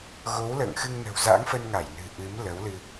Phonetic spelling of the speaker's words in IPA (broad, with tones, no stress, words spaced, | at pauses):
ɣo˨˦wlə̰ː˧˨ŋxɨ˧ŋ nə̤˨˩wza̰˧˥ŋ fə˧nŋa˧˩jnɨ̤˨˩ ʔɨ˨˦m lə˨˦wlɨ˧